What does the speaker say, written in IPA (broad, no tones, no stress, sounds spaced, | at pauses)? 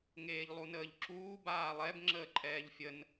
ŋ eː ʎ lˠ u n əː ʎ ǁ uː b aː lˠ ɛ b ŋ͡ǁ əː ǃʼ ɛː ʎ fʲ ə n